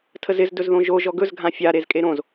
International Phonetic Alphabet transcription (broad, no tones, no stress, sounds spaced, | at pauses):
tʰ ə z ɪ z d ɵ z ð õ ʒ o ʒ ɔ ɡ ɵ z ɡʱ ã fʲ a ɾ e z kʼ e ɾ õ z